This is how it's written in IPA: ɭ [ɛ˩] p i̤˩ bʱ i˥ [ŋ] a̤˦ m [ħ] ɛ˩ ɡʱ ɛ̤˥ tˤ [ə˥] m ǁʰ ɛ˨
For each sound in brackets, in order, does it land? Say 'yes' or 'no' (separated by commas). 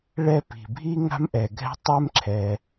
no, yes, no, no